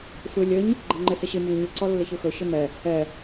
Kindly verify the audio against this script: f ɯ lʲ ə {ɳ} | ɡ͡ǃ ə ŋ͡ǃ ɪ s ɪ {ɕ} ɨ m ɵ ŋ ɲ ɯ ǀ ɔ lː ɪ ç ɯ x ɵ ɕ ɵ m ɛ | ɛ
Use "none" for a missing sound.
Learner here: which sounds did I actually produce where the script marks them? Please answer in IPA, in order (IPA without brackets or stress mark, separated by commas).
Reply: ɲ, ɕ